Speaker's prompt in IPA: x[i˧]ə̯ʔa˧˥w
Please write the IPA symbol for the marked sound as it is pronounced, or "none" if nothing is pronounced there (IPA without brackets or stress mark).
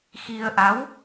i˧